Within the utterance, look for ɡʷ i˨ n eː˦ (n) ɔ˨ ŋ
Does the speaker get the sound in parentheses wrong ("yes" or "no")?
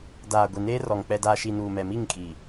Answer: yes